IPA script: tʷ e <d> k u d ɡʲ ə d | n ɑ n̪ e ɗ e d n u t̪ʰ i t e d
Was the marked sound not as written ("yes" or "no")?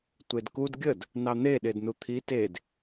no